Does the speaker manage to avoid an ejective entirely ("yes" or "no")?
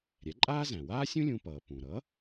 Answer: no